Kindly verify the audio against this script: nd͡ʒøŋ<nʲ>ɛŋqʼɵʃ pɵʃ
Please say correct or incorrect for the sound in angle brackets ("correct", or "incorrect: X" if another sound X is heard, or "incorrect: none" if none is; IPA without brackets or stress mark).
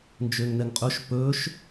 incorrect: n